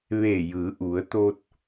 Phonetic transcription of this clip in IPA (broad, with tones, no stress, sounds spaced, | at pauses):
ʋ eː˧˩ j ɯː˩˧ ʔ u˩˧ ə̯ t̪ oː˧ t̚